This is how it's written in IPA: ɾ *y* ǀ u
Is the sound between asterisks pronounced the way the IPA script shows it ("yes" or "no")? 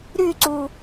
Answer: yes